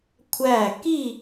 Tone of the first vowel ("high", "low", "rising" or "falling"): falling